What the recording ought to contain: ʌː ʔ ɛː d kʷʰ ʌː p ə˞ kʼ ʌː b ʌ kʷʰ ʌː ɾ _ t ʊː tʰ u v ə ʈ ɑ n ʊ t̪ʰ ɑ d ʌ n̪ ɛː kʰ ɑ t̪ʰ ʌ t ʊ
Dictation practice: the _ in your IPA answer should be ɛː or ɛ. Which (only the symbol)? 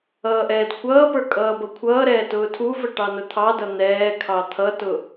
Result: ɛː